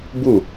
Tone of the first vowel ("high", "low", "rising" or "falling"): falling